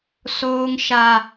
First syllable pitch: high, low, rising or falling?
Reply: high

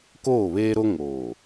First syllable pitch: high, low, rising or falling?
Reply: falling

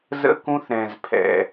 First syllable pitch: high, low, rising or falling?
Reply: high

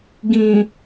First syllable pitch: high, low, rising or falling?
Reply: low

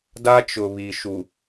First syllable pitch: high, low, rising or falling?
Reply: high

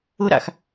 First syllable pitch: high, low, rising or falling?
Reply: high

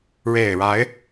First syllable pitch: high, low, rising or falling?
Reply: low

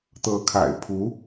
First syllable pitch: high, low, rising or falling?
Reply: rising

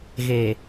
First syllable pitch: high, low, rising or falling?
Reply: low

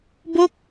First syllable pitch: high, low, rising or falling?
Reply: falling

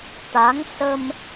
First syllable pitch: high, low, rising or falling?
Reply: rising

